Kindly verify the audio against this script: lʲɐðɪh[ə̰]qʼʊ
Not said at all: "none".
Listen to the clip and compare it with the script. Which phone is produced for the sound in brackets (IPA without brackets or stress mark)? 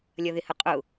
ə